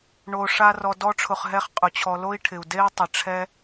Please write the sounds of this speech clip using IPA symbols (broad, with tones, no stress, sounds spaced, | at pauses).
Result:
ɳ o˩ ʂ a˨ r ɔ˨ d ɔ˥ ʈ͡ʂʰ ʊ˨ χ ɦ ɛ˥ χ qʼ ʊ˩ t͡ɕʰ ɔ˨ l o˥ i̯ ʈʰ ɪ˩ u̯ d e˥ i̯ tˤ ɪ˩ ʈ͡ʂʰ ɛ˥